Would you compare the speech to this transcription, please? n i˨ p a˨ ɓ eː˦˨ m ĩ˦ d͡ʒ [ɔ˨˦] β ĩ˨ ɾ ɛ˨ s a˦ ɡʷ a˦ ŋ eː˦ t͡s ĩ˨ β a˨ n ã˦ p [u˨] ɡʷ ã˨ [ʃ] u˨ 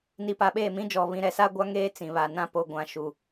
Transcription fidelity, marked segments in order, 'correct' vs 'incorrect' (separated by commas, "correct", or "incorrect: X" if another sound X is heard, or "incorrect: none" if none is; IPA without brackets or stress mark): incorrect: ɔ˨, incorrect: o˨, correct